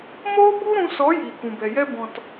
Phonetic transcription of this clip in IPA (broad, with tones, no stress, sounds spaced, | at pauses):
m oː˦ b u˦ ɾ ũ˧ s ɔ˨˦ j iː˨ k ũ˨ b ɛ˨ j ɛ˦ b ɔ̃˨ t